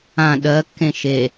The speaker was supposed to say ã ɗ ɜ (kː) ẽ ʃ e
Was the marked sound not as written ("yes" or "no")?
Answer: no